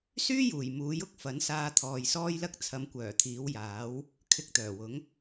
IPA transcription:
s yː˥ j uː˨˩ j m uː˨˥ j ʊ˧ k̚ f ɐ˨˥ n s aː˧ t̪ʰ ɔː˨ j s ɔː˥ j l ɐ˥ k̚ t͡sʰ ɐ˨˧ m kʷ œː˨˩ t̪ʰ iː˨˥ w j aː˨˥ w | kʰ ɪ˧ k̚ t̪ œː˨˩ w ʊ˨˥ ŋ

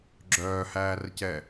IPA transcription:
ɡ͡ǁ œː h æː r c ɛ

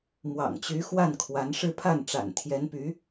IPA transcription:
m w ɑ̰˨˩ ŋ t͡ɕ y˧˥ x w a˥˩ n kʰ w a˧˥ n ʂ ɻ̩˥˧ pʰ a˥˩ n ʈ͡ʂ a̰˨˩ n t̪ʰ j ɛ˧˥ n p y˧˥

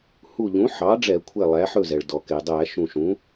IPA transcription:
h u˧˩ ʎ ũ˩˥ ħ ɑ˩˥ ɖ͡ʐ ɛ˧˩˧ kʷʰ e˥˩ lˠ æ˩˥ ħ ɵ˥˩ z ɛ˩ ɭ d ɔ˩ k e˩ dˤ æ˧˩˧ ʃ ũ˧˩ ʃ ũ˩˥

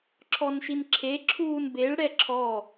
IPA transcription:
ǁʰ ɔ n ʃ i n ǁʰ e ǁʰ uː n b e ɭ ɽ ɛ ǁʰ ɔ

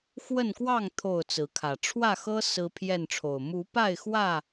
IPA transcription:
x w ə˥˨ n k w ɑ˥˨ ŋ t̪ʰ o˥˨ ʊ̯ t͡s ɹ̩˨˦ kʰ ä˨˩ ʈ͡ʂʰ w ä˥˨ x ɤ˦ s ɹ̩˦ pʰ j ɛ˥˨ n ʈ͡ʂʰ o˨˩ ʊ̯ m u˨˦ p a˥˨ ɪ̯ x w ä˥˨

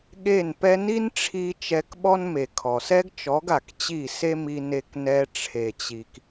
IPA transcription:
ɠ e˦˨ n p ɛ˦ n i˦ n ʈ͡ʂʰ i˧ t͡ʃ ɛ˧ k ɓ ɔ˦ n m e˨ kʰ ɔ˨ s ɛ˦ ɡ t͡ʃ ɔ˨˦ ɡ a˨ k t͡ɕ i˦˨ s e˦ m i˧ n e˧ k n ɛ˧ ʈ͡ʂʰ e˨ t͡ɕ i˨ k

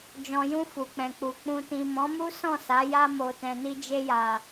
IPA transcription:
d͡ʒ ɔ̃˨ j ũ˧ f u˨ k͡p ɛ̃˨ k͡p u˨ k͡p ũ˨ t ĩ˨ m ɔ̃˨˦ m u˦ s ɔ̃˦˨ s a˨˦ j a˧ m o˨ t ɛ̃˨ n i˧ d͡ʒ e˧ j a˨

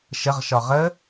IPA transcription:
ʃ ə ʁ ʃ ɒ ʁ ə

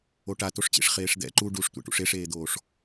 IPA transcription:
o ʈ a t o ʂ t͡ɕ ḛ ʂ χ eː ʂ d̪ ɛ̰ ǃ u ɖ u ʂ tʷ ḛ ʈ ṵ ʂ e ʂ eː d̪ oː ʂ

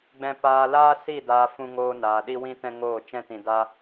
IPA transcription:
ɡ͡b ɛ̃˧ p aː˧ l aː˦ s i˦˨ d aː˧ f ũ˧ ŋ oː˧ n aː˨ ɗ i˦ w ĩ˦ t ɛ̃˦ ŋ oː˦˨ t͡ʃ ɛ̃˦ t ĩ˧ d a˦

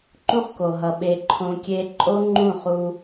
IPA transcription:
ǃ ũ˧ χ k o˨ ɦ ʌ˨ ɓ e˧ ǃʰ õ˧ kʲ e˦ ǃʼ o˦ ŋ͡ǃ ũ˦˨ χ u˧

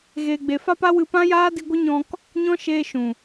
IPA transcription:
ɣ eː˨ ɡ͡b e˨ f a˧ p a˦ w ɨ˧ p ã˦ j aː˦ d i˧ ɡʷ ə˦ ɲ ɔ̃˧ k | ɲ ɔ̃˦ ʃ eː˧ ʃ ũ˨

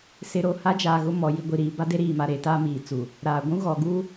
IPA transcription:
s ɪ˨ ɾ o˦˨ h a˦ d͡ʒ aː˨ ɣ ʊ˦ m ɔ˨ j i˨ ɡʷ i˨ ɾ iː˨ b a˦ d e˦ ɾ iː˨ m a˨ ɾ e˨ t a˦ m iː˨ t͡s u˨ | ɾ aː˨ ɡʷ ũ˦ ɣ ɔ˨ ɡ u˦

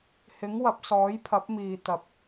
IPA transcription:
h ɪ˨˥ ŋ w ɐ˨˥ p̚ s ɔː˨˥ j pʰ ɐ˨˥ p̚ m iː˨ t̪ ɐ˨ p̚

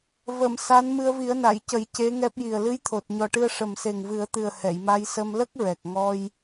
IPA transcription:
v ə˨˩˨ m s a˧˥ n m ɨ˧ ə̯ v i˨˩˦ ə̯ n a˨˩˨ j c ə˨˩˦ j c e˧˥ ŋ ɛ˦˥ p̚ j i˨˩ ə̯ l ɨ˧˥ j t̪ʰ o˨˩ t̚ ɲ ɔ˨˩ ʈ ɨ˧ ə̯ ʂ ə˨˩ m s e˨˩ ŋ v ɨ˨˩˦ ə̯ t̪ ɨ˨˩ ə̯ h ɛ˨˩˨ j m a˧ j s ə˧ m l ə˦˥ k̚ ɹ ɛ˨˩ k̚ ŋ ɔ˧ j

